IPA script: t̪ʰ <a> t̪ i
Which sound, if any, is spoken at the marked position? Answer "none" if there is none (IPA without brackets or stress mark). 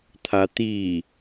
a